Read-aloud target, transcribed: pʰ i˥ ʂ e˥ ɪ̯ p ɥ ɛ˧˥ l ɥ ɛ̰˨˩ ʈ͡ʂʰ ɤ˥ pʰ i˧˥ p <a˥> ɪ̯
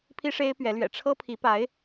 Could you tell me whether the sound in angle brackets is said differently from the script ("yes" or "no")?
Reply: yes